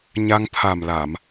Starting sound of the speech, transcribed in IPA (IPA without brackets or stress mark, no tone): ɲ